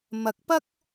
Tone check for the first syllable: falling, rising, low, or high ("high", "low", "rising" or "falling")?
rising